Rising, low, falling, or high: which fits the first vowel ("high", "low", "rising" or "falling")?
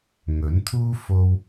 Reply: rising